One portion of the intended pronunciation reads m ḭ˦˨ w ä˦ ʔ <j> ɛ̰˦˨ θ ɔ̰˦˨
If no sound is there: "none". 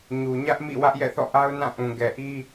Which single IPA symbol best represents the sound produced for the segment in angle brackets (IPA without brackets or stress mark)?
j